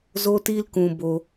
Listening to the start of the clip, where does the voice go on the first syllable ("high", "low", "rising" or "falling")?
high